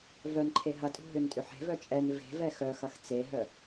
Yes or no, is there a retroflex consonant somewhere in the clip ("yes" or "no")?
no